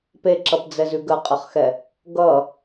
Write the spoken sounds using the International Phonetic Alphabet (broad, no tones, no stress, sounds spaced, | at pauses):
p e ǁ ʌ p d͡z ɛ z ʉ ɡ ə qʼ ə χ x ɛ | ɡ ʌ